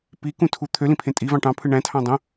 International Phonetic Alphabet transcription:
p i k ũ tʰ u t̪ʰ ø l ĩ pʰ ẽ tʼ i v ɑ̃ ʈ ɑ̃ pʰ ɯ ɳ æ̃ tʰ ɑ̃ dˤ õ

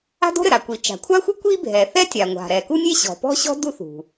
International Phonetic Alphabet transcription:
a̤˥ d o̤˥ ɾ ɘ˩ ɾ a˩ kʷ i˩ t͡ʃ a̤˩ kʷʰ a˥ xʷ ɨ˥ kʷ i˥ bʱ ɛ˩ θ ɛ˥ tʲ a˩ ŋʷ a̤˩ ɾ ɛ˩ k u˥ nʲ e˥ ɕ ɔ̤˩ p ɔ̤˥ ɕ ɔ̤˥ d u˥ θ ṳ˩

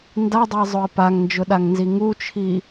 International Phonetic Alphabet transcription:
n d a dˤ ʊ ɪ̯ zˤ ʊ ɪ̯ p a ŋ n d͡ʒ ʊ ɗ a ŋ n z i ŋ u t͡ʃʰ i

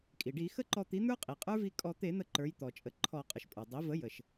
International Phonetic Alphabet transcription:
kʼ i˩ ɖ i˧˩˧ x ə˦˥ ǃ ɔ˧ t̪ i˩˥ n̪ ə˞˦˥ qʼ i˩ qʼ ə˞˦˥ v i˧ kʼ ɔ˧˩˧ t̪ e˧˩˧ n̪ ə˧˩˧ ǃ ə˞˩˧ j t̪ ɔ˩ t͡ʃʼ ə˩˥ ǃʰ ɔ˧˩˧ qʼ ə˩ ʃ pʼ ə˞˩ dˤ i˩˥ v ə˩˥ j ə˩ ʃ

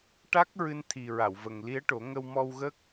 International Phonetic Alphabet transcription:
ʈ a˦˥ k̚ ɹ ɨ˧ n t̪ʰ i˨˩ ɹ a˨˩˨ w v ə˨˩ ŋ l i˧˥ ə̯ ʈ o˨˩˦ ŋ ə˧ w m ɔ˧ w ɣ ə˦˥ k̚

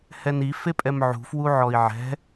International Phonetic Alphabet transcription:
h ɛ n i f e pʼ ɛ m ʕ ṳ f w u ʕ ɔ i̯ ʕ ɛ̤

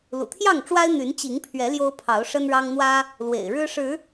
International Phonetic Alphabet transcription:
l ṵ˨˩ t̪ʰ j ɑ˥˨ ŋ ʈ͡ʂ w a˦ ɪ̯ n̪ y˨˦ n t͡ɕ i˨˦ ŋ pʰ ɥ ɛ˨˦ l j o˦ ʊ̯ pʰ ɑ˨˦ ʊ̯ ʂ ə˦ n ɻ ɑ˦ ŋ n̪ w ä˦ | l w ḛ˨˩ ɪ̯ ɻ ɻ̩˦ ʂ ɻ̩˨˦

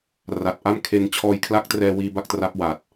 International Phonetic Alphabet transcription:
r a˨˩ t̚ ʔ a˥˩ m kʰ e˧ n t͡ɕʰ ɔː˦˥ j kʰ l a˦˥ k̚ t r ɛː˧ w iː˧ b a˥˩ k̚ t r a˦˥ p̚ w aː˨˩ t̚

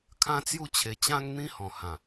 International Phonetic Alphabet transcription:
kʰ ã˦ t͡s j u˥˧ t͡ɕʰ e˧ t͡ɕ ã˦ ŋ n̪ ĩ˦ h ɔ̃˨˩ h ã˨˩

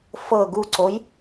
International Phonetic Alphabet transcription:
f ɤ ɡ u ǀ o j

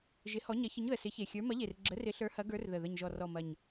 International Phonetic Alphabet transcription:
ʒ ɪ˨˥ h ɔ˨˥ ɲ ɐ˨˥ ç ə˨˥ ɲ ð ə˨˩ s ɪ˨˥ ç e˨˩ xʲ ə˞˨˥ m ɐ˨˥ ʎ e˨˩ r ɡ͡ǁ ə˨˥ r ɪ˨˥ ɬ ə˞˨˥ h ɐ˨˥ ɡ ə˞˨˥ r ð ə˨˩ ð ə˨˩ ɲ ʒ ɔ˨˩ r ɔ˨˩ m ɐ˨˩ ɲ

